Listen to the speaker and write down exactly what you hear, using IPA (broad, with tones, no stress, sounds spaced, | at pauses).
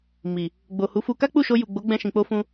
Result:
m i˨ | ɡ͡b o˨ h u˨˦ f u˧ k a˦ k͡p u˦˨ ʃ o˧ j u˨ ɡ͡b o˨˦ ɡ͡b ɛ̃˧ ʃ ĩ˨ k͡p o˧ f ũ˧